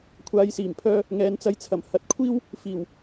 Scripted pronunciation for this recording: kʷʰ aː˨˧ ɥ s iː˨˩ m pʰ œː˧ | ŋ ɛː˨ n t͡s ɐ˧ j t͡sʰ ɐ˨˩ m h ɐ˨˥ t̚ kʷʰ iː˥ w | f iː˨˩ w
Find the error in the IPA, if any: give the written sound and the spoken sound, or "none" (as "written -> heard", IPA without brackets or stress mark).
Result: ɥ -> j